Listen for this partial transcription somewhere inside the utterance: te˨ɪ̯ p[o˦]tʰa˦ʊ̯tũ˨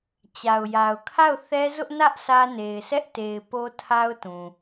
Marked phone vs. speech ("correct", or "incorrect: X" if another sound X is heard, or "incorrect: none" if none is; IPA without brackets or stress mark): correct